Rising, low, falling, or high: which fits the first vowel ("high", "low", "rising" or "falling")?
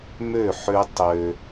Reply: falling